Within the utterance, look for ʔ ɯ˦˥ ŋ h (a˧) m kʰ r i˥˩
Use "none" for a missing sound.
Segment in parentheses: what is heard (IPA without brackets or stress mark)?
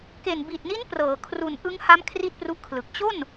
a˦˥